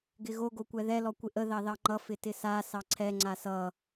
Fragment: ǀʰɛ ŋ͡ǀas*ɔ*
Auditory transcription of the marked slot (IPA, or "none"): ʌ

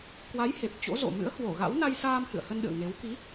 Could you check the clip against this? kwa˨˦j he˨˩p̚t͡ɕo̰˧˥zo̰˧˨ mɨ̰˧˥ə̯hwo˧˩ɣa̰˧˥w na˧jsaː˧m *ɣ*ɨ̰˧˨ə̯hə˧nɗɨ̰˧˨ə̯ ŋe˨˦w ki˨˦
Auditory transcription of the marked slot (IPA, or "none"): h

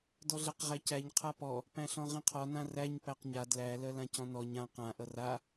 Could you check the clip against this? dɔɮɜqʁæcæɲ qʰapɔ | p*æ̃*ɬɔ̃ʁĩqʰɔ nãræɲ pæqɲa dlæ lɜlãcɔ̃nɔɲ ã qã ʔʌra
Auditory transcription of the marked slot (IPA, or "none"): æ̃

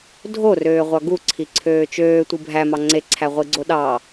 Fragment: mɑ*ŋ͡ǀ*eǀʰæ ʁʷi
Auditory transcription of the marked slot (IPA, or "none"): ŋ͡ǀ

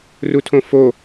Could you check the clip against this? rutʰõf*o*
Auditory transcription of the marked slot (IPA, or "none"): o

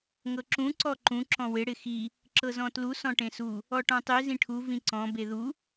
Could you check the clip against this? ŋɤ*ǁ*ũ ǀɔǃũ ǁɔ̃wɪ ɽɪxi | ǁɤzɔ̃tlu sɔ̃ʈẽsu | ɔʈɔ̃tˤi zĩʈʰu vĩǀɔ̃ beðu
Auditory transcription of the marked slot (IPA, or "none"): ǁ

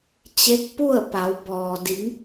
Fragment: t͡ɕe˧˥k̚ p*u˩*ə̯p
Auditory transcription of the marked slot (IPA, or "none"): u˥˨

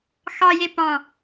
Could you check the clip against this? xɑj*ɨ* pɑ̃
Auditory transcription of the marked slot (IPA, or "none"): e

